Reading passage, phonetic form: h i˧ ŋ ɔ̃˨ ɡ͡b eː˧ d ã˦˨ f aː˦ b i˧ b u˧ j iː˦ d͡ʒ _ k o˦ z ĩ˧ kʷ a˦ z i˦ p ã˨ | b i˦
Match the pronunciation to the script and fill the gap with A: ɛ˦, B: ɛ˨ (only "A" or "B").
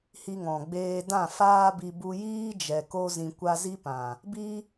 B